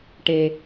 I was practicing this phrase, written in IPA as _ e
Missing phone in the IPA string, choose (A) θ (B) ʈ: B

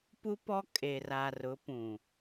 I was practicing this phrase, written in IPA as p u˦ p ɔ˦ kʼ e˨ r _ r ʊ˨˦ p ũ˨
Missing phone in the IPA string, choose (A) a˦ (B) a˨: B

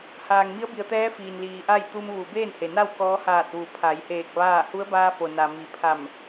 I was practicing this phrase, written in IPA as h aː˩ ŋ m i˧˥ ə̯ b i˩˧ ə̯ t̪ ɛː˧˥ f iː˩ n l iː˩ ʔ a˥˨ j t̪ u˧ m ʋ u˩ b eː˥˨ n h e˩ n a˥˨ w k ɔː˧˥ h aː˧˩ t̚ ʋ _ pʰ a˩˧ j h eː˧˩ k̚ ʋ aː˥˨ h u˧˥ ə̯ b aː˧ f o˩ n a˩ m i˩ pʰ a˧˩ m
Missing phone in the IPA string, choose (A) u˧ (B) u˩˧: B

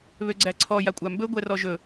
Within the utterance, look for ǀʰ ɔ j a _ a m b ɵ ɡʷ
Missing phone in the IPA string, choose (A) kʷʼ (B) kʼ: A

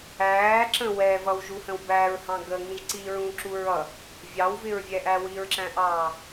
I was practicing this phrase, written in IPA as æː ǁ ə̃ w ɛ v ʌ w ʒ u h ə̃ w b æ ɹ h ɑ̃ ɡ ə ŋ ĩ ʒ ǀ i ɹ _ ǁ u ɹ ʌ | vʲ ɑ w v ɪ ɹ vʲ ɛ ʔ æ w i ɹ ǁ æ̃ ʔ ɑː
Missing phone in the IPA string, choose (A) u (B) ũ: B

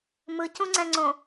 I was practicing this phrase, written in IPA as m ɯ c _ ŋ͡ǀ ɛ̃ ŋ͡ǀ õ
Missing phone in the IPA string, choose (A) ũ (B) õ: A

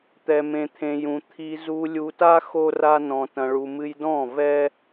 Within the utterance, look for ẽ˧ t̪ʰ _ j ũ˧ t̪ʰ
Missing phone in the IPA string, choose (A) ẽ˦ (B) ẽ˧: B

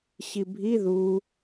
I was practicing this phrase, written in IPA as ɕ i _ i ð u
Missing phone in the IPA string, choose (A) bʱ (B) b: A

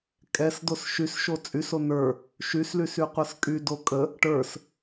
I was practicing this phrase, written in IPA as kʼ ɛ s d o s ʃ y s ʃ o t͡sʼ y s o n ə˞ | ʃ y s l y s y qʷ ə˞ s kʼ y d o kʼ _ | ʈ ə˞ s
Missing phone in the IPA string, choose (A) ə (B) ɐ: A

